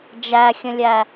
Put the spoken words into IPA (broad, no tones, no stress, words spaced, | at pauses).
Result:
d͡ʒæxʲə̃lʲæ